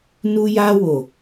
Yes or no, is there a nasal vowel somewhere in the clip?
no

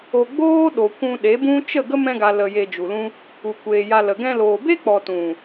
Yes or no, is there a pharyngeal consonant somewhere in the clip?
no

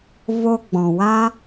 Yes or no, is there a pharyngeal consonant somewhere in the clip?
no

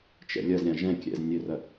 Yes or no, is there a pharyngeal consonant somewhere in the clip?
no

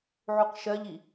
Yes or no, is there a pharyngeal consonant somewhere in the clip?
yes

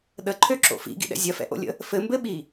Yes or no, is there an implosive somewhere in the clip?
yes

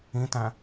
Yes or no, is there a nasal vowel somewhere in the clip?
yes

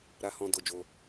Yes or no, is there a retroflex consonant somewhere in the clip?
no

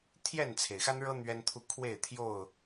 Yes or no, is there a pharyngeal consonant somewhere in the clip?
no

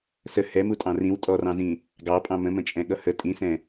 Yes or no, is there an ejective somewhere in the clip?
yes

